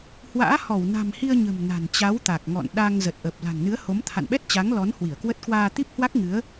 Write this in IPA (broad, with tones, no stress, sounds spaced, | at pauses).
h w a̰ː˧˥ h ɔ˧˩ w n a̤˨˩ m h i˧ ə̯ ɲ ə̤˨˩ m n a̤˨˩ n t͡ɕ a˨˦ w t̪ a˨˩ k̚ ŋ ɔ̰˧˨ n ɗ a˧ ŋ z ə˨˩ t̚ ʔ ə˨˩ p̚ l a̤˨˩ ŋ n ɨ˨˦ ə̯ h o˨˦ m t̪ʰ a̰˧˨ n ɓ ɛ˦˥ t̚ t͡ɕ a˨˦ ŋ l ɔ˨˦ n h w i˧˩ ə̯ k w ə˦˥ t̚ k w aː˧ t̪ i˦˥ p̚ h w a˦˥ k̚ ŋ ɨ˨˦ ə̯